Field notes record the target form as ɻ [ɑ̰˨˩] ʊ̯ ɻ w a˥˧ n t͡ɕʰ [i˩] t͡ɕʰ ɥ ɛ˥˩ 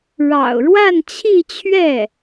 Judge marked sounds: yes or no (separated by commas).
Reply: yes, no